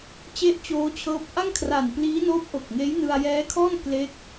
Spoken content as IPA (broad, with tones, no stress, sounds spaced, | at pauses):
t͡ɕ e˥˩ ʔ t͡ɕ oː˦˥ t͡ɕʰ ɤː˦˥ p̚ ʔ a˥˩ ŋ kʰ r a˨˩ n p l iː˦˥ n oː˦˥ p̚ ʔ o˨˩ k̚ ŋ eː˦˥ j n ɯ˧ a̯ j ɛː˦˥ kʰ ɔː˥˩ n k l e˦˥ k̚